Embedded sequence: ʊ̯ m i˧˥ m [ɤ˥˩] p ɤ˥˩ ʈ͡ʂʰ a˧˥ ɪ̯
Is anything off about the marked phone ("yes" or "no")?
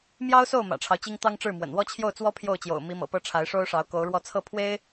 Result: yes